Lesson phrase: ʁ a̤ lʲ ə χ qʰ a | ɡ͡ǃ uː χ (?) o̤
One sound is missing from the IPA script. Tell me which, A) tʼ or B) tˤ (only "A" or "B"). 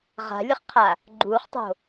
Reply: B